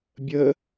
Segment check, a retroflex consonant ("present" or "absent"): absent